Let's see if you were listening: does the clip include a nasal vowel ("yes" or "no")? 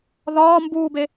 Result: no